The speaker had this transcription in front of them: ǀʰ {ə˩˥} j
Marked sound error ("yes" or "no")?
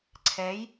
yes